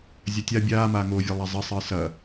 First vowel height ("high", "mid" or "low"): low